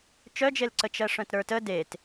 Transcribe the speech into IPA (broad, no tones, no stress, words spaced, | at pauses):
t͡ʃœd͡ʒelǀə t͡ʃɜʂœ̃tɾə˞tə det